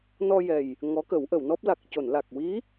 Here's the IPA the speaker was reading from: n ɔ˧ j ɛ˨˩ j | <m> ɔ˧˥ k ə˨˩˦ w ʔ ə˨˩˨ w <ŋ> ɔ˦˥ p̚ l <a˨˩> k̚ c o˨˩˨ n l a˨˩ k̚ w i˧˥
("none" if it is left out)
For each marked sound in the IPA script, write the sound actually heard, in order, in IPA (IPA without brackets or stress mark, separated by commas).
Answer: ŋ, n, a˨˩